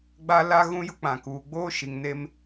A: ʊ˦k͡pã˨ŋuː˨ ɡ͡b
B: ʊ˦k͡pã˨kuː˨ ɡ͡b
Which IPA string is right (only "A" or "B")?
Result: B